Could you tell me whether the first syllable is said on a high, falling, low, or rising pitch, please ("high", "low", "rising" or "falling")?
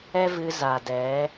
high